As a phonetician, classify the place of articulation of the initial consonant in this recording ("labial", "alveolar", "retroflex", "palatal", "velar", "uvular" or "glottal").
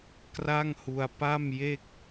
velar